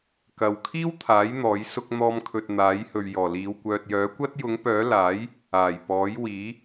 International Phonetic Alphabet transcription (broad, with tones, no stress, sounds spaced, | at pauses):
k ɐ˨ w kʰ iː˥ w t̪ʰ aː˨˥ j n̪ ɔː˨˥ j s ʊ˧ k̚ n̪ ɔː˧ m kʰ ɵ˨ t̚ n̪ aː˨˥ j h ɵ˨ ɥ j ɔː˨˩ l iː˨˧ w kʷ œː˨ t̚ j œː˨˥ kʷ ɐ˥ t̚ j ʊ˨˥ ŋ p œː˨˥ l aː˨˥ j | aː˨˩ j p ɔː˨˥ j w iː˨˥